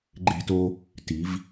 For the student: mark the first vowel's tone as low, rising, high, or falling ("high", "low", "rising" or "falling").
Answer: high